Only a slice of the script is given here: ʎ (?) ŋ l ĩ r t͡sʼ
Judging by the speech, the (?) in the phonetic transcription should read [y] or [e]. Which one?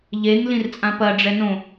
e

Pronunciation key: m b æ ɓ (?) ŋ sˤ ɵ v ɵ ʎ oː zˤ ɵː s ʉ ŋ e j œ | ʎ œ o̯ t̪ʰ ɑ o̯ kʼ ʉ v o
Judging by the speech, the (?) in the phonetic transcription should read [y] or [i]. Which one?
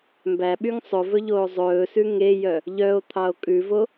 y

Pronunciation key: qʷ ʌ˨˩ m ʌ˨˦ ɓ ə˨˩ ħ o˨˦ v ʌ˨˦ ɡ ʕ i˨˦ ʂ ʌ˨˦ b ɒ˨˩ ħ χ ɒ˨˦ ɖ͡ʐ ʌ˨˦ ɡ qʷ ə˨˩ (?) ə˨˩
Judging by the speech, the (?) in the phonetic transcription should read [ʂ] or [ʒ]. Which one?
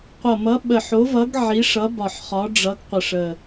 ʂ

